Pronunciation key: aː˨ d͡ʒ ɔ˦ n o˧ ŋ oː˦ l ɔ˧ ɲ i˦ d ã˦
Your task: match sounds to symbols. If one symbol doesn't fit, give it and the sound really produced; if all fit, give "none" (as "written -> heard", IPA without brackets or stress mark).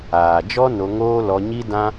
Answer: none